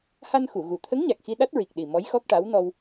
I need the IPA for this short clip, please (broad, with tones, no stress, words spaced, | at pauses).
ha˧n xu˨˩˨ɣu˨˩ t̪ʰə˧˥ŋ ɲa˨˩k̚xi˧ ɗa˦˥t̚ɹi˨˩k̚ɗi˨˩ mɔ˧˥jxɔ˦˥k̚ʈa˧˥w nɔ˧w